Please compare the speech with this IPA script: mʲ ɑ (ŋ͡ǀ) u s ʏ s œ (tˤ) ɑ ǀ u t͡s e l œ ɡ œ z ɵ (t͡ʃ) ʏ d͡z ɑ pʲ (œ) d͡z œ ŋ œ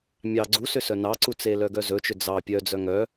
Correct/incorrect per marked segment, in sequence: incorrect: ɡ͡ǀ, incorrect: n, correct, correct

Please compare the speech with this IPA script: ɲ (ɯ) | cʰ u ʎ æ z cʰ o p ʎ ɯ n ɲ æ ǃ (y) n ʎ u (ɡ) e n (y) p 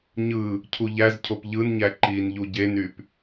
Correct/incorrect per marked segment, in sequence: correct, incorrect: i, incorrect: ɟ, correct

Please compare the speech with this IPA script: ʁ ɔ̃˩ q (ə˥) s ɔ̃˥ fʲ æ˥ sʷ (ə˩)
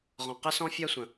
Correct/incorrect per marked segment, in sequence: correct, incorrect: ə̃˩

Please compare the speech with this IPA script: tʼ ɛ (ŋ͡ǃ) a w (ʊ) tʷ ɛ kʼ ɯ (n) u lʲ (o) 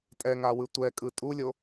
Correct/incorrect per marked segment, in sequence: incorrect: ŋ, incorrect: ɯ, incorrect: tʼ, correct

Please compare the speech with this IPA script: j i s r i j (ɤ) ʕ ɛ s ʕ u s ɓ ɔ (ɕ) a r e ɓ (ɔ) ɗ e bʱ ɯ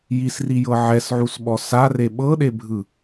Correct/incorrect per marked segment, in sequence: correct, incorrect: s, incorrect: ɤ

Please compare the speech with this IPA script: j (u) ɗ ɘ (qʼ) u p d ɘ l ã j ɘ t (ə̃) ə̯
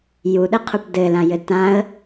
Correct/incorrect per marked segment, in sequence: correct, incorrect: qʰ, incorrect: ã

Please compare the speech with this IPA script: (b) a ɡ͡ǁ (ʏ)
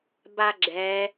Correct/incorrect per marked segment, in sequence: correct, incorrect: ɛ

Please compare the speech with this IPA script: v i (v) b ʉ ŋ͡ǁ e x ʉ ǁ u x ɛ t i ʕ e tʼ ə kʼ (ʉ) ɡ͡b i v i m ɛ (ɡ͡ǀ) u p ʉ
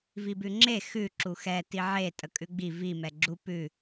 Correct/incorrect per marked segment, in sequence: incorrect: none, correct, incorrect: ɡ͡ǁ

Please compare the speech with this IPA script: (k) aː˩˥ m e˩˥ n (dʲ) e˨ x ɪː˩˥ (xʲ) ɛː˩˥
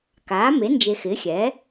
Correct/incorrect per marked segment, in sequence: correct, incorrect: d͡ʒ, correct

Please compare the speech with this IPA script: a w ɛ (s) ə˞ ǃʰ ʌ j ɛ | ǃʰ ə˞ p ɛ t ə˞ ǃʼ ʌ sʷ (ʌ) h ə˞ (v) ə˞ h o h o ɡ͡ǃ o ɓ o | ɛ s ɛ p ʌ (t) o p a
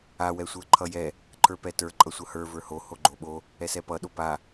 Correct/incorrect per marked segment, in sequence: incorrect: sʷ, correct, correct, incorrect: ɗ

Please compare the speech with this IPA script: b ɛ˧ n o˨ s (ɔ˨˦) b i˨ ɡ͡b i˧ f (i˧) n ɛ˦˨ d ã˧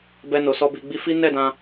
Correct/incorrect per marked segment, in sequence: incorrect: ɔ˧, incorrect: i˦

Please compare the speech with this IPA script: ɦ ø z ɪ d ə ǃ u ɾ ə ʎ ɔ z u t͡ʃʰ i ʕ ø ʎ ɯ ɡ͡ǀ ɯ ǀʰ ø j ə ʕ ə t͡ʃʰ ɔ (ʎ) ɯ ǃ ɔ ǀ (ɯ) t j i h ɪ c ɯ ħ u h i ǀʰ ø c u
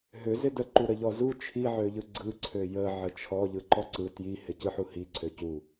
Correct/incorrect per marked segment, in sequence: correct, correct

